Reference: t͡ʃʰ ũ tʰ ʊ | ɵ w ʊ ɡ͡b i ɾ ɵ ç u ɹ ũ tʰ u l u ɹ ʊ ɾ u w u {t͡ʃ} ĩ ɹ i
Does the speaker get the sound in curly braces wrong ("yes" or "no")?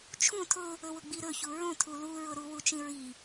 no